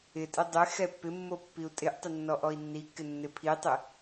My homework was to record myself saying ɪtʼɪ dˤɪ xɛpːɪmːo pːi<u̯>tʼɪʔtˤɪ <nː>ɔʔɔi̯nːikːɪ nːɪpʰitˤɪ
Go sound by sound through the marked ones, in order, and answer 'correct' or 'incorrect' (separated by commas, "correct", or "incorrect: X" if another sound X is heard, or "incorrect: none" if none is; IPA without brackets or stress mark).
correct, correct